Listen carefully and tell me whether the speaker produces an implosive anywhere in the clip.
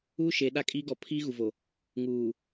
yes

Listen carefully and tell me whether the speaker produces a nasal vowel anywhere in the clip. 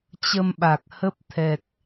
no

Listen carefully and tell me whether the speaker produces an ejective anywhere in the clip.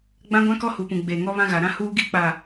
no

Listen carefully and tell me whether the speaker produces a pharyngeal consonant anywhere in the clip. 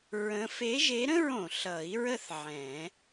yes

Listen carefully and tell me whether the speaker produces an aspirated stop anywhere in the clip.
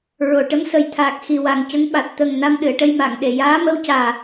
yes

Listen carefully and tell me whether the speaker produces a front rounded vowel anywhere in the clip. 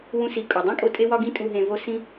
no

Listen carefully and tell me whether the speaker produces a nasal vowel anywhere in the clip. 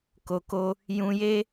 yes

